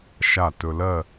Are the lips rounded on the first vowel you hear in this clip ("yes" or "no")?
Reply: no